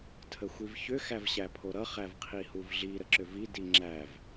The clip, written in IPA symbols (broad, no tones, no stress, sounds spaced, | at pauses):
tʰ ə xʷ i v ç ʏ x æ v ɕ æ pʰ o ɾ ʌ χ æ v qʰ i h u v ɮ i ɾ ə ǁ ʏ v i d i ŋ͡ǁ æ v